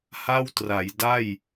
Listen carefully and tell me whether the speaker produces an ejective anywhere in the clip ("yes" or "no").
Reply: no